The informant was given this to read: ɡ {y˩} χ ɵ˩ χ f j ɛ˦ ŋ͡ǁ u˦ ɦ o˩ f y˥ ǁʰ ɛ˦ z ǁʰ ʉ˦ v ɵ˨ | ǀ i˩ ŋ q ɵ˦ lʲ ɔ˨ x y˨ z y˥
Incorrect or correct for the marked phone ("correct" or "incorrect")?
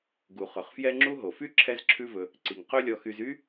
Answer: incorrect